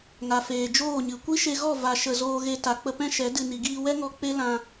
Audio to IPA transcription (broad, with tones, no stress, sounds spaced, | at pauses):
ŋ a˨ f eː˨ d͡ʒ oː˦˨ ɲ ɨ˨ kʷ i˦ ʃ e˧ ɣ ɔ˦˨ v a˧ ʃ ə˨ z oː˧ ɣ e˧ t a˨ k͡p ə˧ p ɛ̃˦ ʃ ɛ˨˦ d ɨ˧ n i˨ ɡ iː˧ w ɛ˦ ŋ ɔ˧ k͡p e˦ l ã˧